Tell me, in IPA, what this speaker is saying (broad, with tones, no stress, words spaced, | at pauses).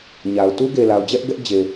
ɲa˨ʊ̯ tu˦ɡe˨la˨ʊ̯d͡ʑɛ˦ʔ ɡɛ˦ʔ d͡ʑe˨